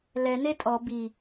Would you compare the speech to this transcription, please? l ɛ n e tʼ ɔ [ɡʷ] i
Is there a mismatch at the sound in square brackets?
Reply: yes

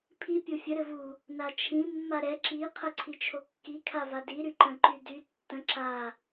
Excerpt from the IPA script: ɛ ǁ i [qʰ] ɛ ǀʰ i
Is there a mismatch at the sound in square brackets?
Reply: no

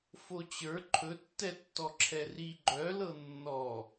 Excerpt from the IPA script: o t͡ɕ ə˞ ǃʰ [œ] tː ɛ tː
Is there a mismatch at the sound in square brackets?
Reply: yes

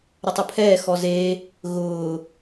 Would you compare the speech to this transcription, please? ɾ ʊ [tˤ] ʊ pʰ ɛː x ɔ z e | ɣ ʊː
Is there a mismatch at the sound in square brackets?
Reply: no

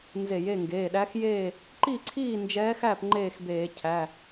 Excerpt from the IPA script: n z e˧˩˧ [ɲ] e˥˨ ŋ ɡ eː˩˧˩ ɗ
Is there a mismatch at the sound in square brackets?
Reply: yes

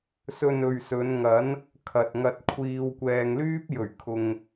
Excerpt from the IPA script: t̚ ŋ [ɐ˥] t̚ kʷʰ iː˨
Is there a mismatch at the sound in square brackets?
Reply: yes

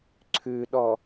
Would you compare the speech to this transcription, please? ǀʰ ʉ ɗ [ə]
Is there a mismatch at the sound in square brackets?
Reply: yes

